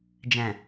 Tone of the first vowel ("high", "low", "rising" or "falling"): low